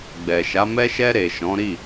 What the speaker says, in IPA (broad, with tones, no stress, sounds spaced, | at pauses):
ɡ͡b ɛ˨ ʃ a˨˦ m ɛ˧ ʃ ɛ˧ ɾ e˨ ʃ ɔ̃˨˦ ɾ i˦˨